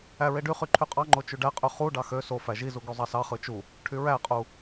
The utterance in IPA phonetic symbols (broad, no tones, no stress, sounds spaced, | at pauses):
æ ɹ e ɖ y χ y ǃʰ y qʼ ɑ ŋ͡ǃ o t͡ʃ y ɖ æ qʼ y χ u ɖ ɑ x ø s o f æ ʒ i z u ɡ y zˤ ɑ s ɑ χ ɯ t͡ʃ u | ʈʰ y ɹ æ qʼ u